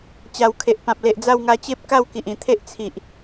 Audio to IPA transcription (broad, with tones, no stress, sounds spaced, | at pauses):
t͡ɕ a˨˩ w kʰ e˨ ʔ p ã˨ p̚ l e˨ ʔ d͡z a˥˧ w ŋ a˧ t͡ɕ e˦ p̚ k a˥˧ w k i˨ ʔ ĩ˨˩ t̪ʰ e˦ ʔ t͡sʰ i˨ ʔ